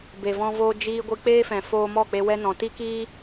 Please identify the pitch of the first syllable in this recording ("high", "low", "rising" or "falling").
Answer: low